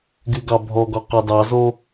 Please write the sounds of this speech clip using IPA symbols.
ɡyɡɑbʱɔɡɔ qɑdɑzo

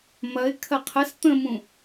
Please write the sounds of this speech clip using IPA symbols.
mɐɪ̯ kʰɐqʰəs t̪ə̃mũ

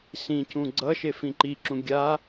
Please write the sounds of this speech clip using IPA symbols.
sĩcũ ɡ͡ǀʌ ʃefĩǃiǁũ ɡʲa

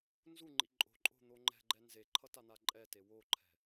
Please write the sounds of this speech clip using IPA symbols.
nzuŋ͡ǃḭ ǃʼo̤ǃʼo̤n̪o ŋ͡ǃɛ̤ɡ͡ǃɛ nzeǃʰʌtan̪a ǃʼɛte woǃʰɛ̤

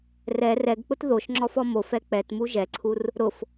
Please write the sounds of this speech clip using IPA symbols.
rɛ rɛɡk͡pʊt ðoʃŋ͡ǁɔfɔ mofɛ k͡pɛtmu ʒɛǀʰur | ɾʊf

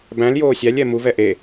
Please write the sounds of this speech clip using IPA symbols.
bæ̃l joːsʲælʲ ɛmuv ɛʔe

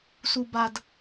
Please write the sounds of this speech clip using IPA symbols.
su˨ba˨d

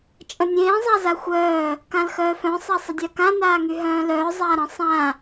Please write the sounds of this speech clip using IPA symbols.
t͡ʃʼə̃nʲẽː zˤazaxʷœː | kãlxœːfœ̃ sˤasˤədʲakã naːŋyɦœ̃ːlœː zˤaːɾə̃ sˤã

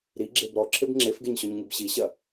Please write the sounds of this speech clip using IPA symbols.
ɾiɡ͡ǁeb ɾɔǁʰeb ŋ͡ǁefɡeɲɕɔɲŋib ɕiɕɐ

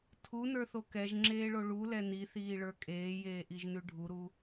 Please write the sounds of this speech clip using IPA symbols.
tʰunə˞θo kɛʒŋ͡ǁeːɭo ɭulɛ niθiːɭə˞ kʼeːjeːʔiʒnʉ ɖʱuɾu

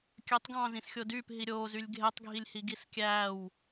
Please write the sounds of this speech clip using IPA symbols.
kʲøtˤɡɑ̃ː zĩsxʲodyːp ɦiɾʲoːzylʲ ɡʱetˤɡʱilʲhi ɡiskʲæːw

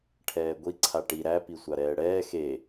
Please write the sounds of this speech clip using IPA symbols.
ʈʰɛːɡʷi ǀʰaʈi ɾæ pisʷaɾɛːɽɛː xe

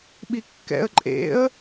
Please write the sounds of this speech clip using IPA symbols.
ɓikːɛ̰ə̯ ǃʼḛə̯

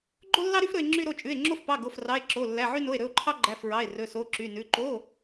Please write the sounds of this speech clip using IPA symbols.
ɡ͡ǃo˥lːɑ˥ɾy˥f ɾɵ˥e̯ ŋ͡ǁy˥ɾo˧˥˧t͡ʃʼʉ˧˥˧e̯ ŋ͡ǁo˥fpɑ˧˥˧ ɡo˧˥˧frɑ˧˥˧e̯ ǁo˧˥˧lːæ˧˥˧ʕy˥no˧˥˧e̯ ɾɵ˧˥˧o̯ǃʰɑ˥ ɡ͡ǃæ˧˥˧fɹɑ˧˥˧e̯ rɵ˧˥˧so˧˥˧ ǁy˧˥˧nʉ˧˥˧ ǃo˧˥˧

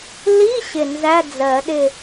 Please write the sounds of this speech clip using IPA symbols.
li˧˥˧ ɕɪ˧˩nzæ˧˥˧d͡zɜ˨˩˦ ɗɪ˧˩

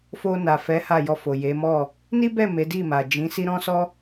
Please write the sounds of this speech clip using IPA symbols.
fo˧na˨fɛ˨˦ ha˦˨jɔ˧fo˨je˨˦ mɔ˦˨ | ni˦bɛ˦˨ me˨˦di˦˨ma˨ d͡ʒĩ˨˦si˦ ɾɔ̃˦sɔ˦

